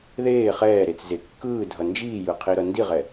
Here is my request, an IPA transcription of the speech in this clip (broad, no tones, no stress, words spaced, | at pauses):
ðeː χɛːɾet͡sze kːɯːdʱʌ nd͡ʒiːjɯqʰiɾʌ ndiʁɛ